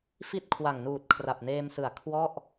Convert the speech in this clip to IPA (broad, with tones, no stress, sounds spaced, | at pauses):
f i˦˥ t̚ kʰ w a˨˩ ŋ n uː˨˩ t̚ kʰ r a˨˩ p̚ n eː˧ m s ɯ˨˩ a̯ kʰ w ɔ˥˩ ʔ